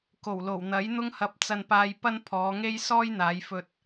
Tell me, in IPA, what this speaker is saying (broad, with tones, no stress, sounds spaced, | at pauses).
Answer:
k o˨˩ w l o˨˩ w n̪ ɐ˨˥ j n̪ ʊ˥ ŋ h ɐ˧ p̚ t͡s ɐ˧ n p aː˧ j p ɐ˥ n pʰ ɔː˨˧ ŋ e˥ j s ɔː˥ j n̪ aː˨˧ j f ɵ˧ t̚